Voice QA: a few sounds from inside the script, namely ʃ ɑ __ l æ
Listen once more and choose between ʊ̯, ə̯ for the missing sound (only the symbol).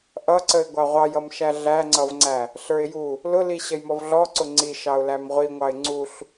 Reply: ʊ̯